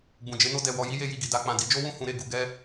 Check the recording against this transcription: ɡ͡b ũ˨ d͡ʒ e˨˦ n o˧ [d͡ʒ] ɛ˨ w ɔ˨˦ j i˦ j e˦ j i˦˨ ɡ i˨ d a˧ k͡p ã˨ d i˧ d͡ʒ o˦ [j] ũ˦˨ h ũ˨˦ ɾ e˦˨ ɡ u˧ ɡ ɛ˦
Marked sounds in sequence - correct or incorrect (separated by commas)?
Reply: incorrect, incorrect